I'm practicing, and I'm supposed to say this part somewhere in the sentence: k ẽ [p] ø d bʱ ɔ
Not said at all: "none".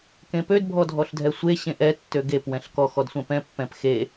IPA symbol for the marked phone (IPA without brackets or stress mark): p